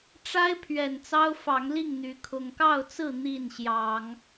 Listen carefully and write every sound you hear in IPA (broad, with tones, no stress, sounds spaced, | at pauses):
ʈ͡ʂ a˦ ɪ̯ pʰ ɥ ɛ˨˩ n t͡s ɑ˦ ʊ̯ f ɑ˨˦ ŋ l i˥˨ ŋ n̪ y˨˦ kʰ ʊ˨˩ ŋ k ɑ˥˨ ʊ̯ t͡s ɹ̩˥˨ n̪ i˥˨ n ɕ j ɑ˨˦ ŋ